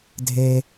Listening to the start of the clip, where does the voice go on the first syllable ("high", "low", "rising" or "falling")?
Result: low